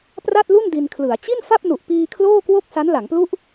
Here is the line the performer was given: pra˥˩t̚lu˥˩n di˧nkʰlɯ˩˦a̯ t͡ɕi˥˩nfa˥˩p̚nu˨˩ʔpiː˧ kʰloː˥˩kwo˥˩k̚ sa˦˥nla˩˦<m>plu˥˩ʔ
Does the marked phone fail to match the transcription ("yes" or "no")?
yes